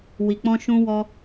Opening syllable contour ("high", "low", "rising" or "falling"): low